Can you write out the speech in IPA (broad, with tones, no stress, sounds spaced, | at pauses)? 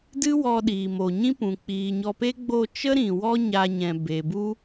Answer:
d ɨ˦ w ɔ˧ ɗ iː˨ m o˨ ɲ ĩ˦ p ũ˨ k͡p iː˨ ɲ ɔ˧ p e˦ ɡ͡b o˦˨ t͡ʃ ə˦ ɾ ĩ˨ w ɔ˦ ɲ a˧ ɲ ɛ̃˨ b e˨ b u˦